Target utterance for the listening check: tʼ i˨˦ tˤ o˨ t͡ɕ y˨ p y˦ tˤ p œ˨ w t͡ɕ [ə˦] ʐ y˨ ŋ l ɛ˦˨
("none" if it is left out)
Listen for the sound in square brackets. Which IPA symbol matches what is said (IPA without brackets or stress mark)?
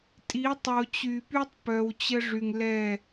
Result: ə˦